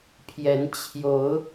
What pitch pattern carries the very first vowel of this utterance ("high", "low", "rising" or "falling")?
rising